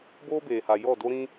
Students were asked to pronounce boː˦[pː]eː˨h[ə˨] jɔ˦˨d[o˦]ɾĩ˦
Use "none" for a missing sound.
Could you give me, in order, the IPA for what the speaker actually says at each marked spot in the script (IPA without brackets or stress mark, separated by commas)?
b, a˨, o˦